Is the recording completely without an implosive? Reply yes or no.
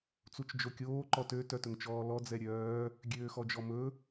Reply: yes